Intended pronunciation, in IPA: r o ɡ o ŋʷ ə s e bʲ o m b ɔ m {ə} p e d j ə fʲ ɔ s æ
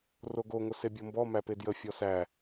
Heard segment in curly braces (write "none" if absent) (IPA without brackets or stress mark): æ